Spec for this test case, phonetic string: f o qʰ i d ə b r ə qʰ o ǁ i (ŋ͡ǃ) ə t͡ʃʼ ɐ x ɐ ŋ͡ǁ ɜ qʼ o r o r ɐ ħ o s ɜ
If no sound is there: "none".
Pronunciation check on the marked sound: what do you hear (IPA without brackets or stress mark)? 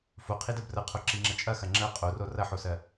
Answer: ŋ͡ǁ